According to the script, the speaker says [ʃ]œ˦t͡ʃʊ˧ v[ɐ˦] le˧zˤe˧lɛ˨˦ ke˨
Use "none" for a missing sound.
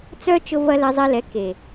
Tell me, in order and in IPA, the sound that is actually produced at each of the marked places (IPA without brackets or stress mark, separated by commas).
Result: t͡s, ɐ˦